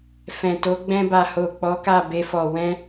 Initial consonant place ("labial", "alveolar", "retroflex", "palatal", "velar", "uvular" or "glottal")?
labial